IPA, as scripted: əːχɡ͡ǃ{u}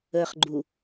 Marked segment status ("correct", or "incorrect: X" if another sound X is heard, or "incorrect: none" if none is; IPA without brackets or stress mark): correct